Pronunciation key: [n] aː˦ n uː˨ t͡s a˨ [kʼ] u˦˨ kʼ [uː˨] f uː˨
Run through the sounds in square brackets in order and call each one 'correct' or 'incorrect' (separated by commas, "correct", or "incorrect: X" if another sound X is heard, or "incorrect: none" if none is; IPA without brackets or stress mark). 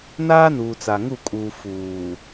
correct, incorrect: ŋ, correct